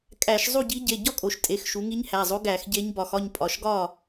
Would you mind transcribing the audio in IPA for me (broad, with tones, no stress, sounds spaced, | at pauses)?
kʼ æ˧˩˧ ʃ zˤ u˥˨ ɟ i˧˥ ɟ e˩˧˩ ɟ ɒ˥˨ kʼ o˩˧ ʃ tʼ e˩˧˩ x ʃ u˩˧ ŋ i˧˥ ɲ h æ˩˧˩ zˤ o˧˥ ɡ æ˧˩˧ x ɟ e˧˥ ɲ b ɒ˩˧ x ɒ˥˨ ɲ pʼ ɒ˩˧˩ ʃ ɡ ɒ˥˨